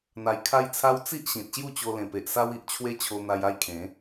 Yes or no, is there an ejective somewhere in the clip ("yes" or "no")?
no